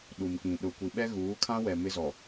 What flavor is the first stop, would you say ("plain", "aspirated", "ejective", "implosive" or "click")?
implosive